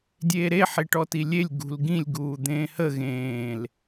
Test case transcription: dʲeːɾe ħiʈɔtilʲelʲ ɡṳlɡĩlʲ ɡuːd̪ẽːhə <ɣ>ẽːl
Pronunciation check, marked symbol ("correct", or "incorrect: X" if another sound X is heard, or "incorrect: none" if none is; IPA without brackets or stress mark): correct